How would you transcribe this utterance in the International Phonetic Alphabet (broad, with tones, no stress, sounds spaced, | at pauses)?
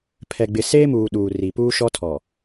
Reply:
pʰ ɛ˨ ɡ͡b ɪ˨ s eː˦ m uː˨ ɗ uː˨ r i˨ p uː˦ ʃ ɔ˦ tʰ ɔ˨